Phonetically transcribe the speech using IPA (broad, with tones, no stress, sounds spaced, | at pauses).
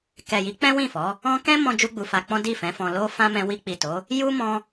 k ɛ˨ j i˨˦ k͡p ɛ̃˦ w ĩ˦˨ f ɔ˨˦ | ɔ̃˦ k ɛ̃˦ m ɔ̃˧ d͡ʒ u˧ ɡ͡b u˨ f a˧ k͡p ɔ̃˦ d i˦˨ f ɛ̃˨˦ f ɔ̃˧ l o˦ f ã˦ m ɛ̃˧ w i˧ k͡p i˨ t o˨˦ | j u˦ m ɔ̃˧